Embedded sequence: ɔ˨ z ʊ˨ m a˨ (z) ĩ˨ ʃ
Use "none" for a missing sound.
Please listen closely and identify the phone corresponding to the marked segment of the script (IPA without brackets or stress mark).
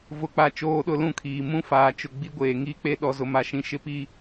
ʃ